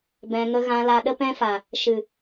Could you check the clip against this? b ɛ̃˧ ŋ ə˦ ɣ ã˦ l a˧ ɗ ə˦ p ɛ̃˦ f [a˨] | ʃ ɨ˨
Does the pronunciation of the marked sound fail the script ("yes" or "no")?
no